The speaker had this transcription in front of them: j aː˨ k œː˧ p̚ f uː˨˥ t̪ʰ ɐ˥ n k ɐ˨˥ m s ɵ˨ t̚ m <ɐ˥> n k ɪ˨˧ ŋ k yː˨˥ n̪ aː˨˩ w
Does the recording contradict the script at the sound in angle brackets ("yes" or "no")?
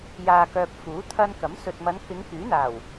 yes